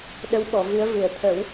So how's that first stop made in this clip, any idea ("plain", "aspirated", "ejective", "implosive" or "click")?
implosive